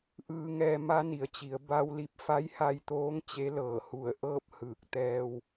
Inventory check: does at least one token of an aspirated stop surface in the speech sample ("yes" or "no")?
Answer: no